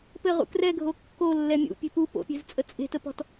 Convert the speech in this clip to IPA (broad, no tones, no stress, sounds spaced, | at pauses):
p ɘ ʁ ṵ k r ɛ ɡʱ o kː o lː ɛ mʲ ṵ pʲ e̤ p u p o̰ pʲ e̤ z t͡sʼ ə t͡sʼ e̤ t ə p ɔ̤ t